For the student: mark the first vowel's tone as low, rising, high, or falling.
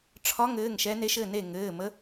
rising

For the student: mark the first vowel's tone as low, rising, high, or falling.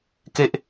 high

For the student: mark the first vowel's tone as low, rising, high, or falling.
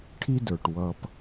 high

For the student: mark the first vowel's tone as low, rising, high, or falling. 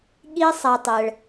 high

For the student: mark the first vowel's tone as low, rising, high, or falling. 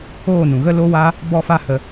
falling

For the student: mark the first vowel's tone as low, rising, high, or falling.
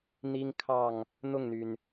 high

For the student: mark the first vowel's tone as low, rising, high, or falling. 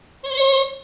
high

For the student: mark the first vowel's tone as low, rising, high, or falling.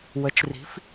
rising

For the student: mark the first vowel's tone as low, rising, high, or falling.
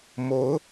rising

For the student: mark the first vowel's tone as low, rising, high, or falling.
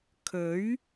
rising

